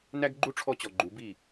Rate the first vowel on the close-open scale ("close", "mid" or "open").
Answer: open